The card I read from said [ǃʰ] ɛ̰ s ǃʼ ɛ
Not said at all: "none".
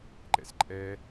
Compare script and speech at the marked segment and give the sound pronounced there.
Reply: ǃ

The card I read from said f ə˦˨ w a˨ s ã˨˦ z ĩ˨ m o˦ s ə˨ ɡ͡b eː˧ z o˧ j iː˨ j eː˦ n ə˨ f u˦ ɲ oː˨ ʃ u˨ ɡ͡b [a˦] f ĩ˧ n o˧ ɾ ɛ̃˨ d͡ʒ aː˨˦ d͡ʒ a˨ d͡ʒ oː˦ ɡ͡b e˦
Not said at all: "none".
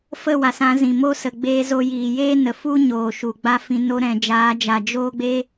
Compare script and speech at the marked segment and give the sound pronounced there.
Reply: a˦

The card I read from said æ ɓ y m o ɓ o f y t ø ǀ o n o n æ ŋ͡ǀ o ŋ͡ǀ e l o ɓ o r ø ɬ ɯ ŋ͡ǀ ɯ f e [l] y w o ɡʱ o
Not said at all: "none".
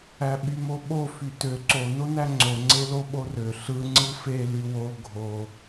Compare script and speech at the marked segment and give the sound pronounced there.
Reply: l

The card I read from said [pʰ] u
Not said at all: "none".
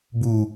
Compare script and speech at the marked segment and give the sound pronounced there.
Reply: b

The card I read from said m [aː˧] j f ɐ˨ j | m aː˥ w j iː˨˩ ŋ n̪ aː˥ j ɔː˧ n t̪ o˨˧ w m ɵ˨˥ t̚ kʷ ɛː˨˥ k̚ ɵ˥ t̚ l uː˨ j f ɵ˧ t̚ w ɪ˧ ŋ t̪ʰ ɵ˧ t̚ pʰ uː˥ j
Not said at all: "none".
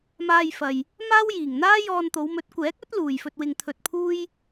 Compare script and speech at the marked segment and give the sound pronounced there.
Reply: aː˧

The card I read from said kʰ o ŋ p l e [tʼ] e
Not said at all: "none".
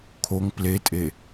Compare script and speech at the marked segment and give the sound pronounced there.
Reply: tʼ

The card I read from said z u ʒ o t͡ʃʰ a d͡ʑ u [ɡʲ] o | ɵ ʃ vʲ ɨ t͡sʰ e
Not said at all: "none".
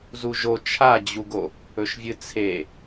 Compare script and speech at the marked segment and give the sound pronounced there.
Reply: ɡ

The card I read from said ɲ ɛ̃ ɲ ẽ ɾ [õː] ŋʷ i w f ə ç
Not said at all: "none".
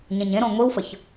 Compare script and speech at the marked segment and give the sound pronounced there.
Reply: õ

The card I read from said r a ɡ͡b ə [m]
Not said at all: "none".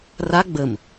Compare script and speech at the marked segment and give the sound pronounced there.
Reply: m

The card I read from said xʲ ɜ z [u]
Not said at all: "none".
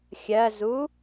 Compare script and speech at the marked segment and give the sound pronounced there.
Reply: u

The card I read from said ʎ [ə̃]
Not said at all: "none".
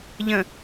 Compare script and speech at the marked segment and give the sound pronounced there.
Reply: ə̃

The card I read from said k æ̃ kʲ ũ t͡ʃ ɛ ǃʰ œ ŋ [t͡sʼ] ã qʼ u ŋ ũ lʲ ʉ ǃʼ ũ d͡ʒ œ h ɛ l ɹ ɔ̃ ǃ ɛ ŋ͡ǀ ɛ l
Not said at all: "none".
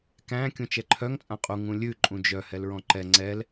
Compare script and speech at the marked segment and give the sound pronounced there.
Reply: t͡sʼ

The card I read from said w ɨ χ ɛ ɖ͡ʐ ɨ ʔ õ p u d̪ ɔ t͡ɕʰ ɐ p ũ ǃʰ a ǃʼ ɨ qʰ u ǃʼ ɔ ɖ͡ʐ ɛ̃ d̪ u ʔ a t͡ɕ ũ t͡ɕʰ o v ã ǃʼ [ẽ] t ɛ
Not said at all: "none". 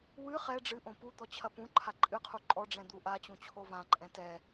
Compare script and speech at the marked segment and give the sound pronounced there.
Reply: ɛ̃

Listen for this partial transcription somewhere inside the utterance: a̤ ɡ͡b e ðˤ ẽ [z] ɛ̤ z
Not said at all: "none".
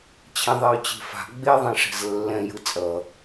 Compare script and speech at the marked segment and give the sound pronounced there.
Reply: ʂ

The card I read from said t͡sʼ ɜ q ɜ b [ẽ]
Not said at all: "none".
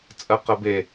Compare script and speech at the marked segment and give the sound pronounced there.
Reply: e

